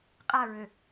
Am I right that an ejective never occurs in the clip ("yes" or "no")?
no